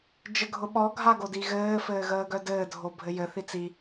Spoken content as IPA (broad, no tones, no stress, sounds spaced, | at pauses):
d͡ʒ ə ɡʱ ʊ ɓ ɔ ɡʱ a ɡ o d i ɣ ɘː f ɘː ɣ əː ɡ œ d ɘː dʱ o bʱ ɘ j ɘ θ i t͡s i